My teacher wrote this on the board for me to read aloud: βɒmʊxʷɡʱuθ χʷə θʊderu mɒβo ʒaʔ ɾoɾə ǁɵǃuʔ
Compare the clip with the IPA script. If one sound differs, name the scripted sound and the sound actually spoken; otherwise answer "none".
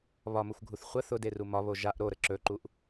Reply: none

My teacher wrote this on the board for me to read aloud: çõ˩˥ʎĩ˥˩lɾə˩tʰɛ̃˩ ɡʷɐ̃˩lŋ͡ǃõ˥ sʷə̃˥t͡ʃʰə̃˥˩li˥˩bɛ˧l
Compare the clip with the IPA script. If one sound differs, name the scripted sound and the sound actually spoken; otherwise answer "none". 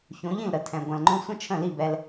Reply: none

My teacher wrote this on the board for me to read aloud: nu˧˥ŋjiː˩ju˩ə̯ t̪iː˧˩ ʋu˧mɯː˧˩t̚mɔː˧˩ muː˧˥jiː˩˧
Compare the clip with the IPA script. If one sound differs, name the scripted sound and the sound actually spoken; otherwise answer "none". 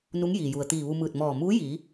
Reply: none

